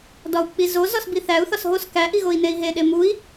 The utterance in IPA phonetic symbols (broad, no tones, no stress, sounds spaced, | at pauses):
d ɒ u̯ k͡p i z o z ɒ s b i θ æ u̯ θ ɒ s ɦ o s k æ ʔ i ɣ o i̯ n e i̯ ɦ e ɗ e m u i̯